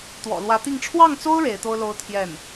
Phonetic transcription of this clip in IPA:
t̪ w ɔ̰˨˩ l w ä˧˥ t̪ i˥˧ ŋ ʈ͡ʂʰ w ɑ˥˩ ŋ t͡s o˥ ʊ̯ ɻ e˧˥ ɪ̯ t̪ o˥ ʊ̯ l o˥ ʊ̯ t̪ʰ j ɛ˥˩ n

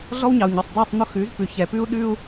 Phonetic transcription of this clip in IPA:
ɮ ɔ˦ w ɲ ɑ˨ u̯ ɲ œ˨ sˤ dˤ ɛ˦˨ sˤ n̪ ʊ˦ x ʉ˨˦ z p ʉ˨ ç ɛ˨ p ʉ˦ u̯ ɗ ʉ˦ u̯

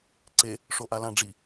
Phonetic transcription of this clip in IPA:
ǀ e | ʂ o ʔ a l ã ɖ͡ʐ i

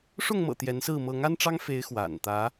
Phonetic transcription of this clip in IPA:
ʂ ʊ˥˨ ŋ m ɤ̰˨˩ t̪ j ɛ˨˦ n s ɹ̩˥˨ m ɤ˨˦ ŋ a˦ n ʈ͡ʂ ɑ˦ ŋ f e˨˦ ɪ̯ x w a̰˨˩ n t̪ ä˨˦

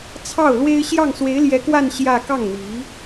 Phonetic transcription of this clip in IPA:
t͡sʰ ɑ˥˩ ʊ̯ l w e˥ ɪ̯ ɕ j ɑ˥˩ ŋ s w e˧˥ ɪ̯ l j ɛ˧˥ k w a˥˧ n ɕ j ä˥˧ k ɑ˥˩ ŋ n̪ i˧˥

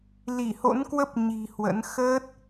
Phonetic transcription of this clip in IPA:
l i˧˩ h o̰˧˥ n k w ə˦˥ p̚ ɲ i̤˨˩ h w ə̰˧˥ n x əː˦˥ t̚

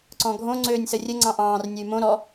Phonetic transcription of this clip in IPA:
ǀ ɔ̃ ɡʱ õ ŋ͡ǀ øː nʲ s ə rʲ ə ŋ͡ǀ ɑ̃ ʔ ɑ̃ː r nʲ ʊ y̯ m õ ɾ ɔ

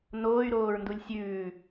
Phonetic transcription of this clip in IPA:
n oː y̯ ɾ oː ɹ n d u lʲ sʲ ʉː

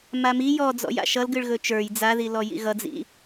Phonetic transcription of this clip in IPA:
m a m i j ɔ d͡z ɔ̰ j a̰ ʃ ʌ l ɡ ɨ ɭ ɣ ɵ t͡ʃ ə˞ j d͡z a ð i l ɔ j ḭ ɣ ʌ d͡z ḭ

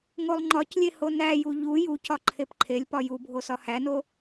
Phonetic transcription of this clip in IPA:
ŋ o lˠ ŋ͡ǃ ɒ c lʲ e h o n æ j u ʎ u j u c ɒ ǃʰ e p ǃʰ e lʲ p ɒ j u bʱ o s ɒ h æ n o

